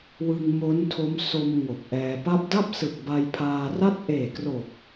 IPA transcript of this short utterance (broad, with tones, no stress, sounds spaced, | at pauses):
w ɯ˧ ŋ m o˦˥ n tʰ o˦˥ m s o˧ m ŋ o˨˩ k̚ ʔ ɛː˧ p a˦˥ p̚ d a˥˩ p̚ s ɯ˨˩ k̚ b a˧ j pʰ aː˧ r a˦˥ t̚ ʔ eː˨˩ k r o˨˩ k̚